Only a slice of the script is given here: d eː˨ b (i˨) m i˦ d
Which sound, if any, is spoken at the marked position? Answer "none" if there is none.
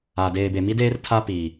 e˨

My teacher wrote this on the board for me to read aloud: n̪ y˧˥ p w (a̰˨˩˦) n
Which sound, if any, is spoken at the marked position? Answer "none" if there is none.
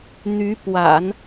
a̰˨˩˦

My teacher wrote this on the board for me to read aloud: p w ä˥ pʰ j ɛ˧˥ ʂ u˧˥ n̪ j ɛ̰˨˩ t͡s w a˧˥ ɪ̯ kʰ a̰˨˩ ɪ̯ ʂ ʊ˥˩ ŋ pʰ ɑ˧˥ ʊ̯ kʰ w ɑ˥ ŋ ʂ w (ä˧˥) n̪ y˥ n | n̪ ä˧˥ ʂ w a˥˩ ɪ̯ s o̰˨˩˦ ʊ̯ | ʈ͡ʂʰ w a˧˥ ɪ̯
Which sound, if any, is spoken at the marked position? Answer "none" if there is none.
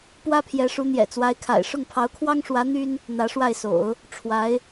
ä˧˥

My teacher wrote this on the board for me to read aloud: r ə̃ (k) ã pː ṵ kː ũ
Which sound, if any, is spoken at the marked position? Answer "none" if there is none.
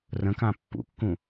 k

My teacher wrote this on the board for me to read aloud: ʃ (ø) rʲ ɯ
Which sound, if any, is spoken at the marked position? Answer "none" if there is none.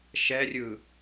ɛ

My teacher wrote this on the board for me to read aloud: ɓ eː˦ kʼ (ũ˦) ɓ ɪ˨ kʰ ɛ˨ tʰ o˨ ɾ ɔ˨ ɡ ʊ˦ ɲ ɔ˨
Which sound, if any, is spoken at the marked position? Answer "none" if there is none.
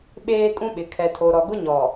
ũ˦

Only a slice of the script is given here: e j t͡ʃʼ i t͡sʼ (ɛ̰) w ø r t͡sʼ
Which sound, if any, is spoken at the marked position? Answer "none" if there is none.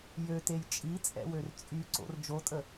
ɛ̰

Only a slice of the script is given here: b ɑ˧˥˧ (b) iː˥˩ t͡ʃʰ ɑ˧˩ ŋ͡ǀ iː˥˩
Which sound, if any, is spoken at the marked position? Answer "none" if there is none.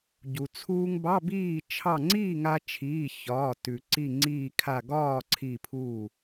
b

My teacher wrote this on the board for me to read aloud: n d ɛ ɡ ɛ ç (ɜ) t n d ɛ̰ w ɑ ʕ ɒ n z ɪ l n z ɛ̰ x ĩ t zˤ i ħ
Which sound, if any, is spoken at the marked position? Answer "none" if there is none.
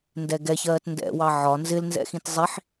ɜː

